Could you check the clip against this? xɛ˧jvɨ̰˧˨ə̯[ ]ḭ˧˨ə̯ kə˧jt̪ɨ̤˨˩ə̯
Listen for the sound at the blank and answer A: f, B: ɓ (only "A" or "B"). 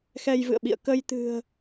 B